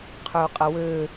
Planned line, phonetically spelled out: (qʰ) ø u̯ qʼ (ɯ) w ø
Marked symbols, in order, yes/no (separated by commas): yes, no